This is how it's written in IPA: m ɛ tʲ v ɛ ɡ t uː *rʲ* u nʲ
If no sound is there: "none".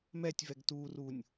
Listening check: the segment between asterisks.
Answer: r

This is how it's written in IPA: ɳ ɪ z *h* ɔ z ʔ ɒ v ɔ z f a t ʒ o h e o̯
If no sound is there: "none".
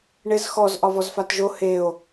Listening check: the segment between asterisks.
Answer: x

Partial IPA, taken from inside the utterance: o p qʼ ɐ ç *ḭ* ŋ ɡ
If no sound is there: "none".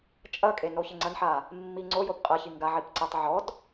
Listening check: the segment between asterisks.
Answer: i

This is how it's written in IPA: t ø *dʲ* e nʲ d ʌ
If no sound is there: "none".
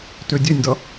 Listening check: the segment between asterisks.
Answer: dʲ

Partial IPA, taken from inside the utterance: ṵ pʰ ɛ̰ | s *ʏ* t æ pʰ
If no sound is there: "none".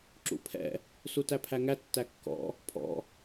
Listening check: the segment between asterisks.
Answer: u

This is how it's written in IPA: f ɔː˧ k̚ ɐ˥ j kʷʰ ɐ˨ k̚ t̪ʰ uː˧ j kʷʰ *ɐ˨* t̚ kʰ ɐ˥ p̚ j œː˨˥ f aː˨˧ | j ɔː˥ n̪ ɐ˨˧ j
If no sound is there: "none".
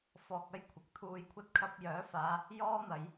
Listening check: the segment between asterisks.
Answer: ɐ˥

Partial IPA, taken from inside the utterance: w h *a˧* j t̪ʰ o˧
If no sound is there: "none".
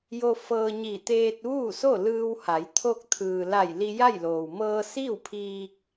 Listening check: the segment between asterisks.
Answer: a˩˧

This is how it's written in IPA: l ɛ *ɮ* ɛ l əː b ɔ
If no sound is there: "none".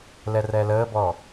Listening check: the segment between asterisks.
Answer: r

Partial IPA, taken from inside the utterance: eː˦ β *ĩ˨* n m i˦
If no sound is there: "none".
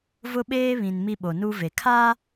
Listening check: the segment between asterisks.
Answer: ĩ˨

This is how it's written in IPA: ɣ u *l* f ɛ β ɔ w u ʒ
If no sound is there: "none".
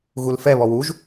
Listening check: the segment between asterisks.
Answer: l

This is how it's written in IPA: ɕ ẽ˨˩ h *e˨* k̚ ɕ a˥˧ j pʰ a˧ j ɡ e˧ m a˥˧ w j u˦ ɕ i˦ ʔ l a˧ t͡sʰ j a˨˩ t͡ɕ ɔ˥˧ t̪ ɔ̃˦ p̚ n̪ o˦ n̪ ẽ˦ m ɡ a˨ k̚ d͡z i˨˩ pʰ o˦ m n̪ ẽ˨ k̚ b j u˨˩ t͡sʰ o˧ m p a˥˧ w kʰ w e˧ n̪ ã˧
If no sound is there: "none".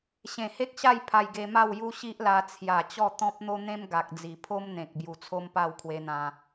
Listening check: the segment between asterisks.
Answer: e˦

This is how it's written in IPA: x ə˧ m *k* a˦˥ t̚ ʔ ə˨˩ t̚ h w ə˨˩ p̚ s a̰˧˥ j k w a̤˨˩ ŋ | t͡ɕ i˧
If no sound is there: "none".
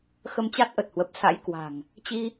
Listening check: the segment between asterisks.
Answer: t͡ɕ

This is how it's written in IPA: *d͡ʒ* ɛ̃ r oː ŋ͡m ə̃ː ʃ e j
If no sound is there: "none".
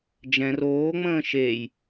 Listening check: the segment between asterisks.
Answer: d͡ʒ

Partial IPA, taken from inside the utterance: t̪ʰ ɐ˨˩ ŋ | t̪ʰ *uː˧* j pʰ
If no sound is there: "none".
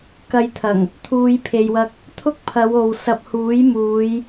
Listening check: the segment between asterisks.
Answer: uː˧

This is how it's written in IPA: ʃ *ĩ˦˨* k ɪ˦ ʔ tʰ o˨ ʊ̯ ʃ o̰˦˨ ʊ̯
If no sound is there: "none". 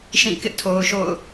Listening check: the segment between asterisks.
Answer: ĩ˦˨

